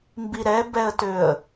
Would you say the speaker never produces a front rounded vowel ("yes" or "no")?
no